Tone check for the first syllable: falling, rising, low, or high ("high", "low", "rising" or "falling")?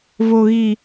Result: low